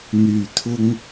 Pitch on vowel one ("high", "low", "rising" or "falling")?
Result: low